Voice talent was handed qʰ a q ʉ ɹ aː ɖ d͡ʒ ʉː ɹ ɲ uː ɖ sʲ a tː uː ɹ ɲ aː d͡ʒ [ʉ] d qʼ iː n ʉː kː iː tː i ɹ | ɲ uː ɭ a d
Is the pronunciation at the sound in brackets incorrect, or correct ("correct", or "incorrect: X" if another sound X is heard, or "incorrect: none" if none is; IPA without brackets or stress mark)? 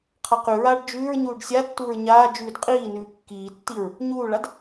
incorrect: ʉː